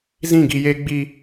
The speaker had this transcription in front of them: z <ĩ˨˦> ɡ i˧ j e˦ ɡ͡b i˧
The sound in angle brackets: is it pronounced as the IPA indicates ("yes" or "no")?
no